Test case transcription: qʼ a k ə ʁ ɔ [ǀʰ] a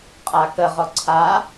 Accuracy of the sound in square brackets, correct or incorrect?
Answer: correct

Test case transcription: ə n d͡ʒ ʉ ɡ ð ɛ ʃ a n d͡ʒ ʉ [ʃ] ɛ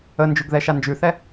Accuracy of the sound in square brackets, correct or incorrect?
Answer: incorrect: θ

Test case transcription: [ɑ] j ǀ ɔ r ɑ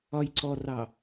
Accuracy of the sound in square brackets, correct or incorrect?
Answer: incorrect: ɒ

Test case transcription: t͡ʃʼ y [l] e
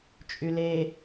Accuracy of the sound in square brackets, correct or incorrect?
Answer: correct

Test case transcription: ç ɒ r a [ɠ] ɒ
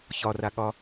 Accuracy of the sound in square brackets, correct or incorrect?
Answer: correct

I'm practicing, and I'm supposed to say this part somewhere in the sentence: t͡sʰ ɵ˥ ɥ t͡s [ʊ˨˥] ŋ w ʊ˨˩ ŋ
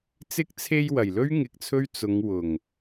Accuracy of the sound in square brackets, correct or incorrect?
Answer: incorrect: ʊ˨˧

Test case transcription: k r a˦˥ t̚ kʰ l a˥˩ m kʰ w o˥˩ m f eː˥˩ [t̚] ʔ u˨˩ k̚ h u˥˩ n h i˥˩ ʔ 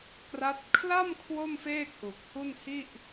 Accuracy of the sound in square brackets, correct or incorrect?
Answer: incorrect: k̚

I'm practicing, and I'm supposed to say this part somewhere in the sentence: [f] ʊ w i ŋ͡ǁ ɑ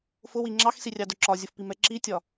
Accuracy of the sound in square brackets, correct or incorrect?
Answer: correct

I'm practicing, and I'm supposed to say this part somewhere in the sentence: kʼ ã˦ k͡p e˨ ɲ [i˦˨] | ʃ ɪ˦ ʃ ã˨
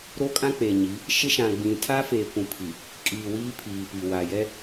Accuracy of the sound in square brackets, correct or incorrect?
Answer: incorrect: i˨˦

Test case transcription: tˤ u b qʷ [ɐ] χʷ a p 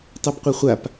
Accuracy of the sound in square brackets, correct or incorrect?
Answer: incorrect: a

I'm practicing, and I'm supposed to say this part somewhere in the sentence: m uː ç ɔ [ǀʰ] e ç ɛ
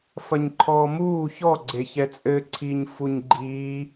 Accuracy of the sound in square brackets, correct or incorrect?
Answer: incorrect: ɡ͡ǀ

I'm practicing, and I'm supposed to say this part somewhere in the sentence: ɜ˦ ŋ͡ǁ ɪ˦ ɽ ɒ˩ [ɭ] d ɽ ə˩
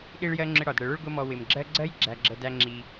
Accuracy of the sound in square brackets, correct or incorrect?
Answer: incorrect: none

